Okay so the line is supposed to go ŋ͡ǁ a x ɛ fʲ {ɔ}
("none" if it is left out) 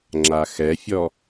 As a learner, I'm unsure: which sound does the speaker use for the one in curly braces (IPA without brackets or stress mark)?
ɔ